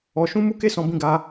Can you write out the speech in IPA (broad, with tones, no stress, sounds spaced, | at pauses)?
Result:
ɔ˧ ʃ ũ˦ m u˦ k e˦ s ɔ̃˧ b ĩ˧ ɡ a˧